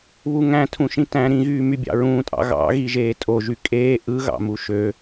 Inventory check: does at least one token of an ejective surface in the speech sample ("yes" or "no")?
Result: yes